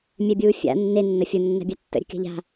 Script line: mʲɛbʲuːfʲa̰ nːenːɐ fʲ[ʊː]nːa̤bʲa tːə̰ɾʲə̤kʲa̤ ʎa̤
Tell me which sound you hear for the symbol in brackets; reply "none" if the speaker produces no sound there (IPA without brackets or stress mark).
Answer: ʊ